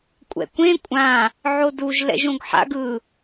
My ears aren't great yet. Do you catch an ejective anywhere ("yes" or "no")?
yes